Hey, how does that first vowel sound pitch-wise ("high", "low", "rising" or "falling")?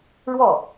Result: falling